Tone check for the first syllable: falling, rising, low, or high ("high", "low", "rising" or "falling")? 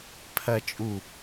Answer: high